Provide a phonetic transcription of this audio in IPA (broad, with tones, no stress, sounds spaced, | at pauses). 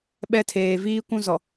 ɓ ɛ˦ tʰ eː˨ v iː˦ kʷ ũ˦ z ɔ˨